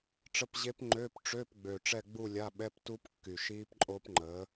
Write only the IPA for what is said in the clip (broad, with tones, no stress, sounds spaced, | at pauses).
ʈ͡ʂ ə˧˥˧ p ʑ e˦˥ p ŋ͡ǃ øː˧˥˧ p ʈ͡ʂ ø˧˥˧ p ɡ͡b ø˨˩ ʈ͡ʂ ɛ˥˧ ɡ͡b u˥˧ lʲ a˧˥˧ ɓ ɛ˧˥˧ p t u˦˥ p kː y˨˩ ʃ iː˦˥ p ǃʼ o˦˥ p ŋ͡ǃ ə˨˥